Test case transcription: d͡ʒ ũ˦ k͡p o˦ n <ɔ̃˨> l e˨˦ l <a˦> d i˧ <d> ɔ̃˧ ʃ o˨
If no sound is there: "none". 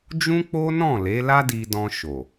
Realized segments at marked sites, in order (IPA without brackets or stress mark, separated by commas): ɔ̃˦˨, a˦, d